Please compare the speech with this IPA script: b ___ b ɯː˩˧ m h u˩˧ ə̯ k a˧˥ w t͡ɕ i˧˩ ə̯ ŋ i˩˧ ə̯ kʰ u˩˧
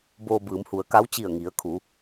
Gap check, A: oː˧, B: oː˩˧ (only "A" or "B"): A